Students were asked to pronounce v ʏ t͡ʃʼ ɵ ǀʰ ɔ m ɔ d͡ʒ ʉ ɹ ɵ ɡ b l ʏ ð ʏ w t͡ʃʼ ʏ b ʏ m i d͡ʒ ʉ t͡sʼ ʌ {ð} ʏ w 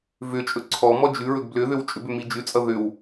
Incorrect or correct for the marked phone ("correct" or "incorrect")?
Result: correct